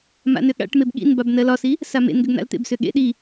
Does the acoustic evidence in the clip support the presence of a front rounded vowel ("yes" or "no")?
yes